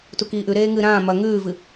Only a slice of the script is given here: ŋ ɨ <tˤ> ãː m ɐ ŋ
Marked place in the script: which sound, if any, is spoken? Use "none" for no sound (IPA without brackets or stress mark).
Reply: ɾ